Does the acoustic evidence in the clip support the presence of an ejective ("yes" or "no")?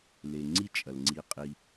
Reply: yes